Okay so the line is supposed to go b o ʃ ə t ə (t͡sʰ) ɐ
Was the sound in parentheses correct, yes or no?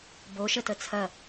yes